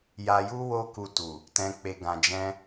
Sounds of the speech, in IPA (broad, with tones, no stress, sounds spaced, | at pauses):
j a˧ j u˦ w o˦ k u˧ t u˨ | t ɛ̃˧ k͡p e˧ ɡ ã˧ d͡ʒ ɛ̃˦